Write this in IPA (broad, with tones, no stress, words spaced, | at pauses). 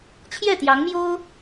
t͡ɕʰjɛ˥˩t̪jɑ˧˥ŋmjo˥ʊ̯